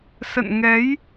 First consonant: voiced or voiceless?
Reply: voiceless